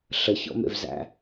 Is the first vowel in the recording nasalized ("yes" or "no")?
no